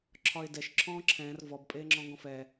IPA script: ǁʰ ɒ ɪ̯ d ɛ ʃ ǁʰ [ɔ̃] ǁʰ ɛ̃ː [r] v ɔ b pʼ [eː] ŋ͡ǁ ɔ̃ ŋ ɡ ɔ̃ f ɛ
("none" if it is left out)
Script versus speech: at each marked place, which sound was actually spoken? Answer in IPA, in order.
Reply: ɔ̃ː, r, eː

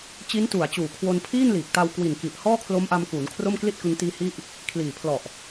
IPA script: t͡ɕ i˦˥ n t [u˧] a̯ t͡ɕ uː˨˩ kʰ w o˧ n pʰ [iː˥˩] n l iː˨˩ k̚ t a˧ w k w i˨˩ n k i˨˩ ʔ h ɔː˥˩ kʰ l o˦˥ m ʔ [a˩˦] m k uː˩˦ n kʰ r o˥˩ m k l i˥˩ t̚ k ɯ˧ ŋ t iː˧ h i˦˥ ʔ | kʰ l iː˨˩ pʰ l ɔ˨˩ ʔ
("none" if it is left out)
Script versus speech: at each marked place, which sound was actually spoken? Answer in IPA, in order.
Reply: u˨˩, iː˥˩, a˧

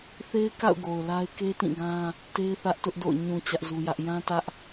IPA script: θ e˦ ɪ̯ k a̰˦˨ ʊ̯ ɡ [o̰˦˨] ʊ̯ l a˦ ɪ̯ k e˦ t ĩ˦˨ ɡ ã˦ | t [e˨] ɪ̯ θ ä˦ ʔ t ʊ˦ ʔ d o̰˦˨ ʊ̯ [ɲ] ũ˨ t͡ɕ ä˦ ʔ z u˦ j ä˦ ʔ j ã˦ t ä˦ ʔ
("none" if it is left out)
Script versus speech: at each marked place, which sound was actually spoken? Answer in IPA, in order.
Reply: o˨, e˦, ɲ

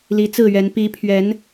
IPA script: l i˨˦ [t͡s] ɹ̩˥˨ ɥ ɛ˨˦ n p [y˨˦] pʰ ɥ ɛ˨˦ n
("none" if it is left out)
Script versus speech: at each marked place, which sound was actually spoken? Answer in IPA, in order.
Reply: t͡s, i˨˦

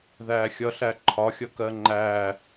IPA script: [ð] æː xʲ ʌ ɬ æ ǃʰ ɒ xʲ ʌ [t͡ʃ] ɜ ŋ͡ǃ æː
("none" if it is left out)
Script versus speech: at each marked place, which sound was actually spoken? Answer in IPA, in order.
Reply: ð, k

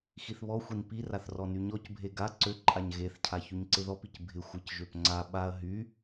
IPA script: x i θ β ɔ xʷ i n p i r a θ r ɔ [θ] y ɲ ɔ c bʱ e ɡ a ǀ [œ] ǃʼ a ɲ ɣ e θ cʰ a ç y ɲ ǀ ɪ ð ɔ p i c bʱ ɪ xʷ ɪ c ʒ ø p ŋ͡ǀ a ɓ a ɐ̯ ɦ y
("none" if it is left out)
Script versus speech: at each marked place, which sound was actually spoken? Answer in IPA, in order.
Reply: n, ø

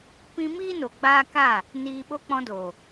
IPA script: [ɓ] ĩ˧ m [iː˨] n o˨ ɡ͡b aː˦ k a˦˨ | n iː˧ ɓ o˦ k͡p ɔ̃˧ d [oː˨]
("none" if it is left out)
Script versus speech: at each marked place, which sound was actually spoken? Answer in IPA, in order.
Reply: p, iː˦, oː˨

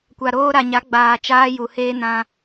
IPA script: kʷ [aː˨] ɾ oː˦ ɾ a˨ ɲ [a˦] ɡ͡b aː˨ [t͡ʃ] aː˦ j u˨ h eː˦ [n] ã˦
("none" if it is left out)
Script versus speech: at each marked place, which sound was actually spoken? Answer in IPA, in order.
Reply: a˨, a˨˦, t͡ʃ, n

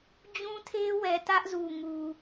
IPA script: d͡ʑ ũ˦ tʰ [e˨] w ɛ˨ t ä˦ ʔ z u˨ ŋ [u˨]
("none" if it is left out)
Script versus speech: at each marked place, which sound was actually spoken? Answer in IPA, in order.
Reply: e˦, u˨

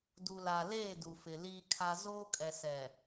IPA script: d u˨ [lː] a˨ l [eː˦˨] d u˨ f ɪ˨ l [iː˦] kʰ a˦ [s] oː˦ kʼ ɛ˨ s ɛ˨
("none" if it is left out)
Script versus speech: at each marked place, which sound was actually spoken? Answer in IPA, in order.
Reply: l, eː˦˨, iː˦, z

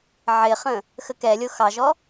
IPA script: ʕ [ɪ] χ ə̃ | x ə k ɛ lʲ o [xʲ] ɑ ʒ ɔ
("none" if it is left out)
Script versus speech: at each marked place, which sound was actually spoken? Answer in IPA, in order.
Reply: ɪ, x

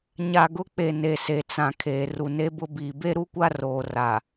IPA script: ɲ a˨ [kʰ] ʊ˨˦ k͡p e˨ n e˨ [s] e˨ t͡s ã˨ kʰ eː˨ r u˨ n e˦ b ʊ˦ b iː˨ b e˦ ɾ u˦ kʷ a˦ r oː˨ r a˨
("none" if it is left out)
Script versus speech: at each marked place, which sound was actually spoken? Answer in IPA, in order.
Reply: ɡ, s

